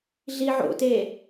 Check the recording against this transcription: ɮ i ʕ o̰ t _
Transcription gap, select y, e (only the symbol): e